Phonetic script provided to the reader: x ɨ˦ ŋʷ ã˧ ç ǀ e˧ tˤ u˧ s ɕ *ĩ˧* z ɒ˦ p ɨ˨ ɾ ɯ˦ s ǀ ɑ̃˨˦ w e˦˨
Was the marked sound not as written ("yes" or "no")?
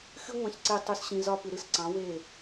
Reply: no